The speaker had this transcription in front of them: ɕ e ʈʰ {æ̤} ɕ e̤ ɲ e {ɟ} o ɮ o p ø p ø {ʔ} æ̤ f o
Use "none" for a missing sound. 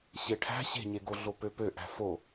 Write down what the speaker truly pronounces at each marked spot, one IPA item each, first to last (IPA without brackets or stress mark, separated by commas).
æ̤, ɡ, ʔ